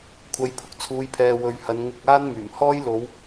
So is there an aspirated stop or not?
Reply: yes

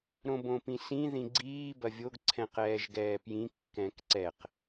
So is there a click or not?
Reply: yes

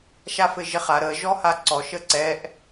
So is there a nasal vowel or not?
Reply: no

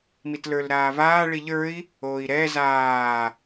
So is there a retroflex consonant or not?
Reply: yes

